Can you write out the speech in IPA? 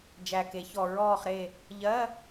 d͡ʒ æ˨˩ k e˩˧ ç ɔ˨˩ ɹ ɔː˦˨ χ ɾ e˦˨ | ʎ ɜ˧˥˧

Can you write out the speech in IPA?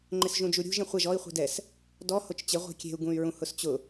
ŋ͡ǃ ɪ s ʒ ũ d͡ʒ u ɾʲ ṳ ʒ ẽ χʷ ɛ ʒ ɔ i̯ χʷ i̤ d ɛ s | d ɔ h o t͡ʃ t͡ɕ ɪ ʁʷ i̤ kʲ e̤ u̯ ɡ ũ y̯ ɹ ũ h ʊ s t͡ɕ ʊ

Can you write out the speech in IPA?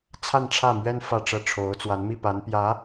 t͡sʰ a˥˧ n ʈ͡ʂʰ ä˥˩ m ɥ ɛ˥ n f ä˥˧ ʈ͡ʂ ɤ˥˩ ʈ͡ʂʰ o˧˥ ʊ̯ t͡s w a˧˥ n m i˥˩ p a˧˥ n p j ä˧˥

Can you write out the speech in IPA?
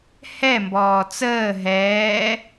h ɛ m b ɔː t͡s əː ɦ ɛː

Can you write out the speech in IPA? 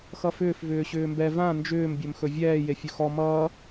x ʌ f ʏː f v ʏː ɕ ʏː m b ɛ v ã n d͡ʒ ʏː m bʲ ɵ m x ɵ vʲ ɛː j e fʲ ɵ x ɔ m ʌː

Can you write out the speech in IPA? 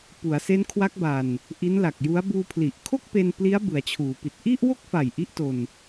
p u˩˦ a̯ s e˦˥ n kʰ w a˦˥ k̚ b a˧ n | ʔ i˦˥ n l a˨˩ k̚ j u˦˥ a̯ b uː˧ pʰ l i˨˩ ʔ kʰ o˥˩ k̚ p e˧ n p l i˦˥ a̯ b ɯ˩˦ a̯ t͡ɕʰ uː˩˦ p i˨˩ t̚ ʔ i˥˩ ʔ w o˥˩ k̚ f a˨˩ j ʔ i˥˩ ʔ t o˧ n

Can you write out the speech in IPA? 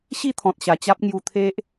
ɕ i˥˧ t̪ʰ ɔ̃˨ t̚ ɕ a˨˩ t͡ɕ a˦ p̚ ŋ j u˧ t̪ʰ e˦ ʔ

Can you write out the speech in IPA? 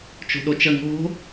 t͡ʃ o̤ ɗ o t͡ʃ ə ŋ o̤

